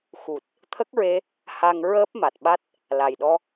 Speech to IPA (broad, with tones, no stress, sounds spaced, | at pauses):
x u˨˩ t̚ | t̪ʰ ə˦˥ k̚ ɹ e˧ | h a˧ ŋ ɹ əː˦˥ p̚ m a˨˩ t̚ ɓ a˦˥ t̚ | l a˨˩ j ɗ ɔ˧